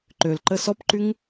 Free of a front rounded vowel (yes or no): no